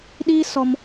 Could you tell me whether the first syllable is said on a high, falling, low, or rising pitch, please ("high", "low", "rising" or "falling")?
high